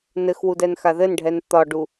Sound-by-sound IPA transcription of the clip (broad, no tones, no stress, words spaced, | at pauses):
nɘxwu dɛnxaðɘnɖʱɛn t̪ɒɖu